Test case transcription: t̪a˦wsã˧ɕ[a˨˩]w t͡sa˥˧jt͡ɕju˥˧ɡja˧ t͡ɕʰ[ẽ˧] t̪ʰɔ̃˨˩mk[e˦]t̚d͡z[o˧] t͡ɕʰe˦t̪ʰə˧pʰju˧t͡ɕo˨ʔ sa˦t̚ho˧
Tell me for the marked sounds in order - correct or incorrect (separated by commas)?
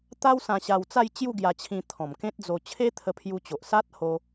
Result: incorrect, incorrect, incorrect, correct